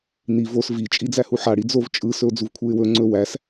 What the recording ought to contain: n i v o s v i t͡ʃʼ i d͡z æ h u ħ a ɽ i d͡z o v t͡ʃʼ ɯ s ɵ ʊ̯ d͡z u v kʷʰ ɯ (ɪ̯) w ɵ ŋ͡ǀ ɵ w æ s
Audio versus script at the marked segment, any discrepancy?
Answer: no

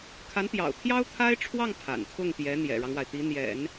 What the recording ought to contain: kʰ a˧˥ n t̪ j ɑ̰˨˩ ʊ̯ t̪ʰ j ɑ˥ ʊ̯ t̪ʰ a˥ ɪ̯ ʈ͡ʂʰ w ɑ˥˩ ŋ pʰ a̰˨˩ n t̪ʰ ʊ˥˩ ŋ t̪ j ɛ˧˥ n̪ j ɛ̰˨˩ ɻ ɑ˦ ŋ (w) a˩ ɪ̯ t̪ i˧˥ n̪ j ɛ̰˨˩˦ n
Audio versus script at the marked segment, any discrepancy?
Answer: no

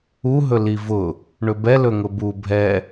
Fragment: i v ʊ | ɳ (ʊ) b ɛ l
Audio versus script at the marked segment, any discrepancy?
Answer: yes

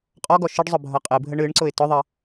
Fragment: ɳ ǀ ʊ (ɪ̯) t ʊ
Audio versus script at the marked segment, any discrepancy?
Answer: no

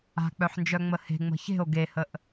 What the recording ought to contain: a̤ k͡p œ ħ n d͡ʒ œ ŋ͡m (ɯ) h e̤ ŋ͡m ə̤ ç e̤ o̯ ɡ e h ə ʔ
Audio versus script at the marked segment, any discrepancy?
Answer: yes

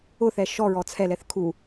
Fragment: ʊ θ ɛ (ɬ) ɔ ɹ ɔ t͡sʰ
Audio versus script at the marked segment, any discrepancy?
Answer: yes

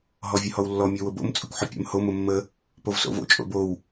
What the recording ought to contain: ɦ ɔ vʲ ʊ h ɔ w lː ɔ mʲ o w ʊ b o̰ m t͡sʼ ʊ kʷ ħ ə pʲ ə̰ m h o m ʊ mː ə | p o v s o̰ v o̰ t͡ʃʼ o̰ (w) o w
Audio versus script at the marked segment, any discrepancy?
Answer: yes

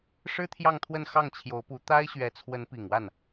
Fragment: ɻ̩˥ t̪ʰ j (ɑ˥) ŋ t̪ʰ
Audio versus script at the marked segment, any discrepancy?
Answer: yes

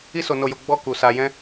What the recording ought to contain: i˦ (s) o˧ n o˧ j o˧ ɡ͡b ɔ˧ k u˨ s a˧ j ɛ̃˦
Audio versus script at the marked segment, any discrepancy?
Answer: no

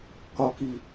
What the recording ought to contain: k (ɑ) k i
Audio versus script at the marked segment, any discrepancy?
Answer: yes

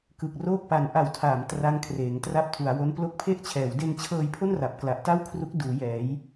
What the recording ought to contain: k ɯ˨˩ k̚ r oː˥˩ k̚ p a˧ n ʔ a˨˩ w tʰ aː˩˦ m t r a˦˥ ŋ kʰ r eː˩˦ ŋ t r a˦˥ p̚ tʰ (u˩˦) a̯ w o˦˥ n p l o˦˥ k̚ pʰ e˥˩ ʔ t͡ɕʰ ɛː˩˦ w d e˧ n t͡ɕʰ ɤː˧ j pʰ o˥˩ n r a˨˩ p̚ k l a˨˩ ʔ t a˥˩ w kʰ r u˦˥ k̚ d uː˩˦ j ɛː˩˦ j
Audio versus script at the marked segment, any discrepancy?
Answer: no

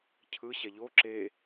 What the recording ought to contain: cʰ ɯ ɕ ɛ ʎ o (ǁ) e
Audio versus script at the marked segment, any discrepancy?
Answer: no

